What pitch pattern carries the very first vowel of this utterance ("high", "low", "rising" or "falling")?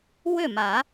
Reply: falling